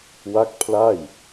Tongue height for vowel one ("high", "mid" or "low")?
low